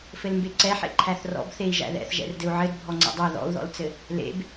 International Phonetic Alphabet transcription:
f ɘ l m b e ǀ ɛ ħ ḛ ǃʰ æ θ r ɔ̰ b θ e i̯ ʒ æ̰ ð ɛ̰ θ ʒ ɛ̰ r d ɘ u̯ ʕ ɘ d bʱ ɔ ŋ͡ǀ ɛ̰ dˤ ɛ ð ɔ̰ u̯ ð ɔ̰ l t͡s ɘ | l ḛ b

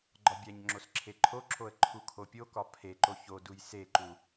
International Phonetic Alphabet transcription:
ɡ͡ǃ ɒ bʲ æ ɲ ŋ͡ǁ o s ǁʰ e ǃʰ o ǁʰ o ə̯ ǃʰ u kʰ o pʲ o k ɒ pʰ e ǃ o ç o d u j s e ǃ u

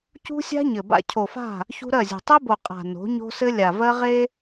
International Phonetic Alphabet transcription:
c ṳ˦ sʲ a̤˦ ɲ ɘ˨ b a̰˦ cʰ o˨ f a̤˦˨ | ç ṳ˦ ɾ ɜ˦˨ zʲ o̤˨ tˤ e˦ b o˨ qʼ a̤˨ n o̤˨˦ ɲ o̤˦ s ɘ˦ lʲ a˨ v ɜ˦ ʁ e˦

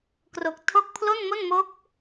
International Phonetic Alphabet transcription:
k r o˨˩ k̚ tʰ o˥˩ k̚ pʰ l o˥˩ n m o˥˩ n m o˦˥ k̚

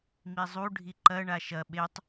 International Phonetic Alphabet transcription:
m i zˤ u ɖʱ i ǃ ɐ ɳ a ʃ ɐ ɓ e tˤ

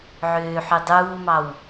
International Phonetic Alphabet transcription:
ʕ øː ħ ʉ dˤ uː m ɑ w

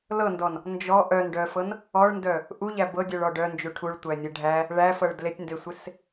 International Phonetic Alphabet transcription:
l ɤ n d ɔ n | n d͡ʒ ɔ ʔ œ n ɖ œ f ɤ n | ɔ ɭ n d œ | ʔ u ʎ æ b ɤ dʲ œ ɭ ɔ ɖ œ n d͡ʒ u ʈʰ u ɭ tʷ æ nʲ e ɖʱ æ | ɭ æ f ɤ ɭ d l e tʲ n d e sʷ e s

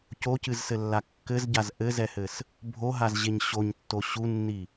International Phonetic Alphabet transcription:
c o c ɨ z s ɘ lː a kː ɘ z ɟ a z ʔ ɘ z ɛ h ɘ s | bʱ o ɦ a z ʑ e ɲ ɕ o ɲ tː o ɕ u nː i

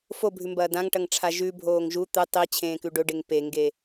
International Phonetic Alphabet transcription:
f o bʱ ʉ m b ɐː d ã ŋ ʈ ɐ ŋ ʈ͡ʂʰ a ʒ ʉ bʱ oː ŋ ʒ u t̪ ɨ tˤ i t͡ɕʰ ẽː k ʉ ɖ ɵ ɖ e ŋ p e ŋ ɡ e

